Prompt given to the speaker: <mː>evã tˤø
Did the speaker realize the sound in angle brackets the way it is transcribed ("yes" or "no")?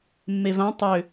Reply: yes